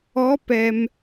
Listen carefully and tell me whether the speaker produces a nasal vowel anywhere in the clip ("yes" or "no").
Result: no